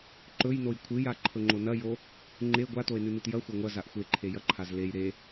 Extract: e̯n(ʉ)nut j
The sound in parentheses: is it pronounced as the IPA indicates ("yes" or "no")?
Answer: yes